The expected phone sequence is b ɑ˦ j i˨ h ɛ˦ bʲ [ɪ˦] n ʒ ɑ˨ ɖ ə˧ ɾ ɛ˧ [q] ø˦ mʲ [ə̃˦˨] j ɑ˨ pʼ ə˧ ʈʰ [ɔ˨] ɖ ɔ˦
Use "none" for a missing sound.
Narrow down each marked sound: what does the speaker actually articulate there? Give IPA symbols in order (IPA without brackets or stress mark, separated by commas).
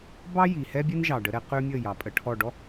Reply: ɛ˦, q, ə˦˨, ɔ˦˨